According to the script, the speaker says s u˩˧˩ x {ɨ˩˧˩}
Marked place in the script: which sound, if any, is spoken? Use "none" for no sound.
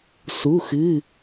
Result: ɨ˩˧˩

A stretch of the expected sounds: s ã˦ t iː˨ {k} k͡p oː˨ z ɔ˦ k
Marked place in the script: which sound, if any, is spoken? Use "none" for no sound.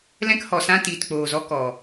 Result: t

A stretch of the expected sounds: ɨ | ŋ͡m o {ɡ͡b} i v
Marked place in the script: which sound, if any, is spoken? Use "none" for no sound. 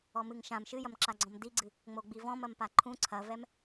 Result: ɡ͡b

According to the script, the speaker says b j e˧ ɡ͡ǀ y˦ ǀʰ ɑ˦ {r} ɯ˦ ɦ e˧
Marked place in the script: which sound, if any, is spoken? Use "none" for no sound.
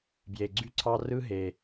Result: r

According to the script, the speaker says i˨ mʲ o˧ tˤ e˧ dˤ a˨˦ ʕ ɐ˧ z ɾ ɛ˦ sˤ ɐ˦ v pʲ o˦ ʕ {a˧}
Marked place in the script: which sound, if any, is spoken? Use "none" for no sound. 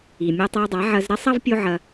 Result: ɐ˧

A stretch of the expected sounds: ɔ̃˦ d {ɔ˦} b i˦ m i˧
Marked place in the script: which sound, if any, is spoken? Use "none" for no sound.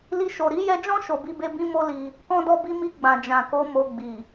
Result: ɔ˦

